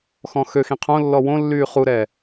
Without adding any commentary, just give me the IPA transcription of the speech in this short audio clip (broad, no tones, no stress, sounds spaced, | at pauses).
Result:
x ɔ̃ x ø x ĩ qʰ õ lː ɔ w õ lː yː χ u ɾ ɛː